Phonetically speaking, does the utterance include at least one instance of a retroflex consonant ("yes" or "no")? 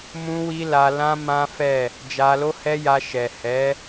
no